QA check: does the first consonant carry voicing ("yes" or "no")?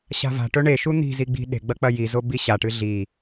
no